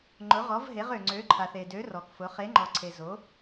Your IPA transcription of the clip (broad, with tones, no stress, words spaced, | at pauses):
ŋ͡ǃʊ˩˧ʁɔ˩˧vɦe˩˧ʁ ø˩ŋ͡ǀø˩˧ǃʰa˩θ e˩dø˩˧ rɔ˩kfʊ˩˧ χe˩˧ŋ͡ǃɔ˩ǀʰe˩ zo˩˧